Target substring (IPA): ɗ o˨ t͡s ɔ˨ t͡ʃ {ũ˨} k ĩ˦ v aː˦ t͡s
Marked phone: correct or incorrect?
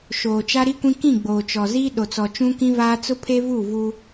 incorrect